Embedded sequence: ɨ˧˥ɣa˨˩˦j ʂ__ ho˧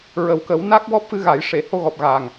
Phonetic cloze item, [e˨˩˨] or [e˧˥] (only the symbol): e˨˩˨